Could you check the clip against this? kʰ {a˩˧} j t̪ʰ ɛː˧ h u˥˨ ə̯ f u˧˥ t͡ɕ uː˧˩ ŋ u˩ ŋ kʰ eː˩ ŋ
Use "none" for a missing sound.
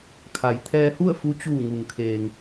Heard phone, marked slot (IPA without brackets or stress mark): a˩˧